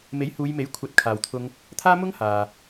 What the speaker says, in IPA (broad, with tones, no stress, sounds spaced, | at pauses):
m e˨˥ j h uː˨˧ j m e˨˥ j kʷʰ ɐ˧ t̚ kʰ aː˨ w t̪ʰ ʊ˥ ŋ | t̪ʰ aː˥ m ʊ˥ ŋ h aː˨